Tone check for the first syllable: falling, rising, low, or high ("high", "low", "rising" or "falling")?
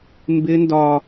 high